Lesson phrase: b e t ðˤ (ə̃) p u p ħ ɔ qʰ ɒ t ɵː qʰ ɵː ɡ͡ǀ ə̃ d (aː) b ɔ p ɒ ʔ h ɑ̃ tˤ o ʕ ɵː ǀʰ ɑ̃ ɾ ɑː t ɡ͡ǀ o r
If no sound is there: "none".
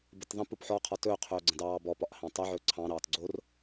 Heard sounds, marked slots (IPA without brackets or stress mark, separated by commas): ə̃, ɑː